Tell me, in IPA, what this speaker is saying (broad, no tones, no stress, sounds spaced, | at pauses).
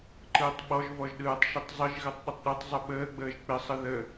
ǃ ɯː tˤ ɓ ɔ ʒ v ɔ ʒ ɗ ɯː tˤ ʃ ɯ tˤ zˤ ɯ ʒ ɣ ɜ tˤ ɗ ɪ tˤ ɗ ɯ tˤ zˤ ə ɓ əː ɡ͡b əː ʒ k͡p ɪ sˤ ɯ ð ə